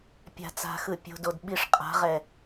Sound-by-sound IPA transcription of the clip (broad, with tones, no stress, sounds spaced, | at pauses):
pʲ a̤˨ t͡s a̤˨ x ɯ˨ pʲ o̤˨ d o˨ d ɓ i˨˦ ʂ qʼ a̤˨˦ ʁ ɛ˨